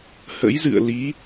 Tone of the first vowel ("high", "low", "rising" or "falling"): rising